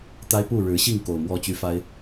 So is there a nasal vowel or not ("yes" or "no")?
no